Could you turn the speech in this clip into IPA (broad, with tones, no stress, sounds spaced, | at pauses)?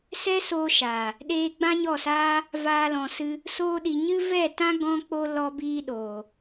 s ɛ˦ s oː˧ ʃ aː˨ | ɗ eː˧ ɡ͡b ã˦ ɲ ɔ˦˨ s aː˦ | v aː˦ l ɔ̃˧ s ɨ˦ | s oː˦ ɗ i˧ ɲ ɨ˦ v ɛ˦˨ t ã˦ ɡ ɔ̃˧ k͡p o˧ l ɔ˧ b iː˧ ɗ oː˨